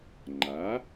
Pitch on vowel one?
rising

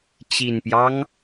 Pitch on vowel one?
low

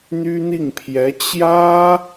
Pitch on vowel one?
high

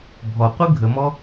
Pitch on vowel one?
low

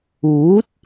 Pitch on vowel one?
rising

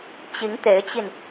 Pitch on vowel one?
rising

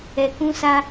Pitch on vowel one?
low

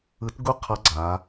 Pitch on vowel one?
rising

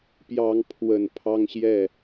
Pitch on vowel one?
rising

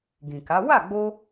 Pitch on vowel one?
low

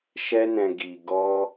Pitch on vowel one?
high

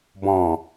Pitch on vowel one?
low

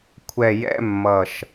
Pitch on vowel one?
low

